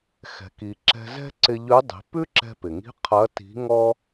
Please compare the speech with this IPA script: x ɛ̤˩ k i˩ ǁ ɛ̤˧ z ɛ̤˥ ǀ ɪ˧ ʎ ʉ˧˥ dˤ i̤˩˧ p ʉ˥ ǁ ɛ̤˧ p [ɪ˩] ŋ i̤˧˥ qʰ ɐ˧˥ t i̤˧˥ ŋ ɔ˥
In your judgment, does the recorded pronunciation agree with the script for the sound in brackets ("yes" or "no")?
yes